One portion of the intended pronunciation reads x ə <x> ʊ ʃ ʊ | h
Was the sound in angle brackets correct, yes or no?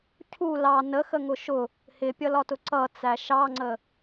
no